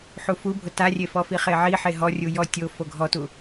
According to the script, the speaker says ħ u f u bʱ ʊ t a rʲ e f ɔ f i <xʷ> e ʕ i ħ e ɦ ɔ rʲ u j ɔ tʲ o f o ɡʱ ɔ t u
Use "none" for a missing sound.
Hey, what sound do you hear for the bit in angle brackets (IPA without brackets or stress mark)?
χ